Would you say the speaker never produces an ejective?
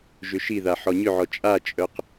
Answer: no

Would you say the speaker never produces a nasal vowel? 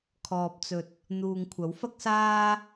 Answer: yes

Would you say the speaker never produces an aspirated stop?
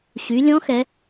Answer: yes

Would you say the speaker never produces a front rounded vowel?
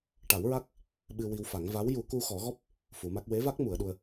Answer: yes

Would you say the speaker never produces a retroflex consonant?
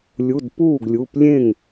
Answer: yes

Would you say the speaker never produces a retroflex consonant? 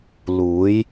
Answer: yes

